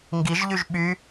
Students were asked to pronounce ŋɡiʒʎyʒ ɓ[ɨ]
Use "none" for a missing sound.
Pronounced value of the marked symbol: y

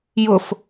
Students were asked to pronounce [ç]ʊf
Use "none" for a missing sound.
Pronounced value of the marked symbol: j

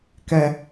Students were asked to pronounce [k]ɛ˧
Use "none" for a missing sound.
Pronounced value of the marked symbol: k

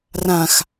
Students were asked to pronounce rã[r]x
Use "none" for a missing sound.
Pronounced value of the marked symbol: none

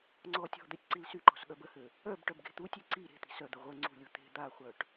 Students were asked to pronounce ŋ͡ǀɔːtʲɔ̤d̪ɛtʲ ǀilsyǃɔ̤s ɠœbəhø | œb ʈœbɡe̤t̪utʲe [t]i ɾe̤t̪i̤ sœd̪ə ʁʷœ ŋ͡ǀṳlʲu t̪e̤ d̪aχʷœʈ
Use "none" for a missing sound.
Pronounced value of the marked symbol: ǀ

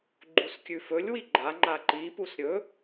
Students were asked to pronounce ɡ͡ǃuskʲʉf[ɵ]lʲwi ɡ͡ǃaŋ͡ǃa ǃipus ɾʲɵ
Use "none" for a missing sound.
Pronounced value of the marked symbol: ɵ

